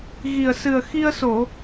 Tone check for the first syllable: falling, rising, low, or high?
low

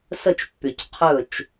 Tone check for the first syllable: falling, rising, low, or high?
falling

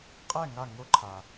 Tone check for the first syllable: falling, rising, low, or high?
falling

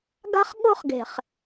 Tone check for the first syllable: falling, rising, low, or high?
high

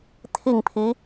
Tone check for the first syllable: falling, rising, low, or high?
falling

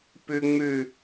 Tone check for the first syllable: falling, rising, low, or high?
high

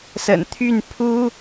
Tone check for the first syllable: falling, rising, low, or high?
low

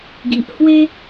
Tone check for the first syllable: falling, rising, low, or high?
low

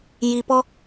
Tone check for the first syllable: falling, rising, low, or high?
low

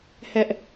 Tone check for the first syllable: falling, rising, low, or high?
high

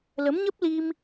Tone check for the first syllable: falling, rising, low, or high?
rising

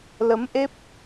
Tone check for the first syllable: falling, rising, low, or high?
rising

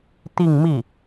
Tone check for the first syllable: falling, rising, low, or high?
falling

